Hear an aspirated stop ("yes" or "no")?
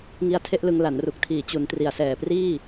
yes